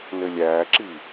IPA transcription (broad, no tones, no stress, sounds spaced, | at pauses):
n ɘ lʲ æː ǁ i